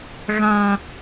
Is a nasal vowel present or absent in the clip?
present